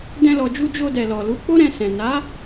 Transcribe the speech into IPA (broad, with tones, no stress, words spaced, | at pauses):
dɛ̃˧lɔ˨d͡ʒu˧ d͡ʒo˧dɛ˨lɔ˨lu˨˦ k͡po˦ɾɛ̃˧ sɛ̃˨ na˨˦